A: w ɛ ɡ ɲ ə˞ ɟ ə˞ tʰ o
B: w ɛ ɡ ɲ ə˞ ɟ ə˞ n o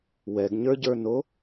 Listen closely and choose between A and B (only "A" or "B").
B